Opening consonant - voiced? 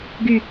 yes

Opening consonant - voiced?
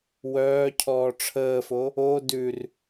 yes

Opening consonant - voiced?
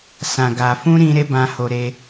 no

